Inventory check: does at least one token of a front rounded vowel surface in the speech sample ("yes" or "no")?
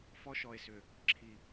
yes